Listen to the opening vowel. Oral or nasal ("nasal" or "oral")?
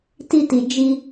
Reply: oral